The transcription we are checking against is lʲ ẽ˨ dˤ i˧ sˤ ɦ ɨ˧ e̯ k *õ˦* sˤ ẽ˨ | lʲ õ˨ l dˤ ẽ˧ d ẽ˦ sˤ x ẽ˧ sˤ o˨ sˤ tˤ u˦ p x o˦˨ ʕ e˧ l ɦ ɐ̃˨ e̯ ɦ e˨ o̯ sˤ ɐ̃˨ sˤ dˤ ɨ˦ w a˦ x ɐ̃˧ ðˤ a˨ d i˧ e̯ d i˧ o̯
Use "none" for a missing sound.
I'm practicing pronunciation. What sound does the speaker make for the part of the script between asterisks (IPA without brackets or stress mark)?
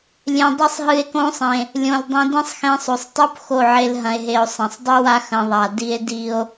õ˦